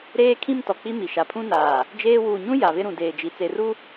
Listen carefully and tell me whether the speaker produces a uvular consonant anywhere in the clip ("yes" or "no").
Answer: no